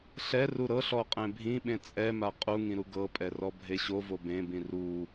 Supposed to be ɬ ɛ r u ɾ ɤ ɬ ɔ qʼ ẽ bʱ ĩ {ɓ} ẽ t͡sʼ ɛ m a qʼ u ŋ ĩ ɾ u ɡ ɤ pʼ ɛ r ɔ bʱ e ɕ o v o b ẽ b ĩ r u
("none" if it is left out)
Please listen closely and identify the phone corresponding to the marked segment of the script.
ɓ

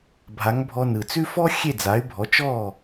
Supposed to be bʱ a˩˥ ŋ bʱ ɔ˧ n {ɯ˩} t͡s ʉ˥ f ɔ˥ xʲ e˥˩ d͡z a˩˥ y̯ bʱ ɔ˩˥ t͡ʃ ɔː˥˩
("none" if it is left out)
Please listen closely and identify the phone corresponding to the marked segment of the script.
ɯ˩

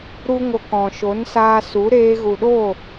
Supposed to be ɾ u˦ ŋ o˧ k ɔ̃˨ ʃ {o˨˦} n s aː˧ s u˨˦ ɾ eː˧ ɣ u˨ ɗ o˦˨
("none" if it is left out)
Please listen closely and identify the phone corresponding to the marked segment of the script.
o˨˦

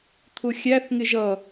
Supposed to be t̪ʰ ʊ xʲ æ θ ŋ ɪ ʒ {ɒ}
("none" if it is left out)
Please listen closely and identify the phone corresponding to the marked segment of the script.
ʌ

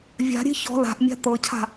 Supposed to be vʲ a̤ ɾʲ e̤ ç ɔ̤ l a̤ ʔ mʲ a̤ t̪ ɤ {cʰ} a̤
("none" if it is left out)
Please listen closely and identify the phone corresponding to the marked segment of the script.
cʰ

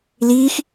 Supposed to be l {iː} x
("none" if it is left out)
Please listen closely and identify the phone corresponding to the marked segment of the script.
iː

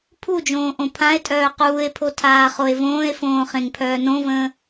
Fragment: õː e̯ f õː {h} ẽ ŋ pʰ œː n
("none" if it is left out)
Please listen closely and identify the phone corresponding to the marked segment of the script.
χ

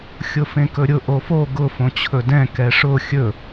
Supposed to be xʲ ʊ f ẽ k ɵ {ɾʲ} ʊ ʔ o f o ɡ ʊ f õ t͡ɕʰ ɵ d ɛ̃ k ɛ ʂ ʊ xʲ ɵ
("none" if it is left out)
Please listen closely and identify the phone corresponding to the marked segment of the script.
ɾʲ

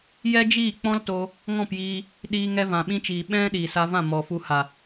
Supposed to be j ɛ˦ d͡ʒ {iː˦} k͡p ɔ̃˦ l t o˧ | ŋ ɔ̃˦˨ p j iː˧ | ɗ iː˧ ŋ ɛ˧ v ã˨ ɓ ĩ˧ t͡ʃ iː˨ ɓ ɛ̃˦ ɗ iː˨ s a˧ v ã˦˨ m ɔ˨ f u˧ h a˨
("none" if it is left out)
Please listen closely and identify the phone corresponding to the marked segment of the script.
iː˦˨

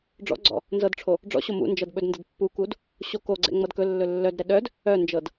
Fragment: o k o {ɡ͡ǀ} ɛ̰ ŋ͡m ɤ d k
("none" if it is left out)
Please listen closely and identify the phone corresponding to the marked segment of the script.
ɡ͡ǀ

